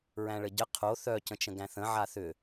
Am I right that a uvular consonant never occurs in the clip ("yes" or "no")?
no